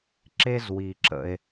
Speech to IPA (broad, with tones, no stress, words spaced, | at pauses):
ǁe˥zwi˩ǁə̰˩e̯